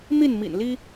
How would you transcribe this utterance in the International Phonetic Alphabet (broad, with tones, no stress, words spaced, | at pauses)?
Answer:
n̪i˥˨nmḭ˨˩nli˦